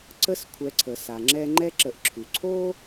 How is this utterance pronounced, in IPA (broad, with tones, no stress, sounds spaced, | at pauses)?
ǀ ə˥ s kʷʰ ɛ˨ ǀʰ ə˩ s a˩ ŋ͡ǁ ɛ˦ ŋ͡ǃ ɛ˥ ǁ ə˨ ʔ ǁʰ ʉ˩ ǀʰ o˥